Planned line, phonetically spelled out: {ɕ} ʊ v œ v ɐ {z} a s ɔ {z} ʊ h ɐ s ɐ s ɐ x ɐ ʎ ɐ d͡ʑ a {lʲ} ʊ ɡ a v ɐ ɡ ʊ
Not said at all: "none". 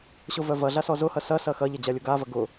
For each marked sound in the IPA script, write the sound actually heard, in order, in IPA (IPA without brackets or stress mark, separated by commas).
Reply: ɕ, ɮ, z, lʲ